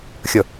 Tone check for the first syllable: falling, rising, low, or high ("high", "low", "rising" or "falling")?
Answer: falling